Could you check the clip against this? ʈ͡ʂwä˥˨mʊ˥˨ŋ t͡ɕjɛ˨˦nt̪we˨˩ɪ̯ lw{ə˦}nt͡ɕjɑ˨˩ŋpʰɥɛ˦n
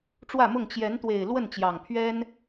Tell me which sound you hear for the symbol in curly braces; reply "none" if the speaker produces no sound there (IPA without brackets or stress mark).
ə˥˨